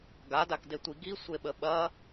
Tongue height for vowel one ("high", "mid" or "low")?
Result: low